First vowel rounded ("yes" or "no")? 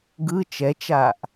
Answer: no